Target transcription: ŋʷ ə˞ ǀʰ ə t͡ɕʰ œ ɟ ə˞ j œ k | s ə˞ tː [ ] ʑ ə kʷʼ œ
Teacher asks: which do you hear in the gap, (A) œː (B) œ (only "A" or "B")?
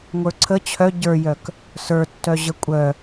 B